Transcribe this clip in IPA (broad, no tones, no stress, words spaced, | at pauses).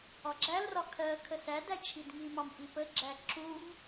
ɒɡ͡ǁælrɒ kʰɜ kʰəsædæ t͡ʃʰidŋimɑm ʔipəɡ͡ǁæ ǁum